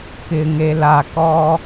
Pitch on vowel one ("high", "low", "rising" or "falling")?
low